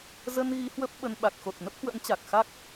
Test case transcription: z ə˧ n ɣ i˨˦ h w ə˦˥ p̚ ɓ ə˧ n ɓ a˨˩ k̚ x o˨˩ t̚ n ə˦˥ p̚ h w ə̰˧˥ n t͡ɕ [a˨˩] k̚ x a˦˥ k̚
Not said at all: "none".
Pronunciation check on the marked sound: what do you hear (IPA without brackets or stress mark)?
a˨˩